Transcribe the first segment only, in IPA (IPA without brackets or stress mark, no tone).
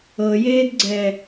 ɤ